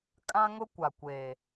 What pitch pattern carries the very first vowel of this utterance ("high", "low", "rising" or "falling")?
high